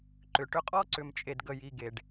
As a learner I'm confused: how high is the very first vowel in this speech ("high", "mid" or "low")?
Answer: high